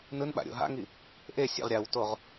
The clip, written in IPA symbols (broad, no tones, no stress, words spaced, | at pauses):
nɯnɓa̰ ɾʲo̰ɦa̰ŋi | ʔesʲḛʁ ɾʲawtoʁ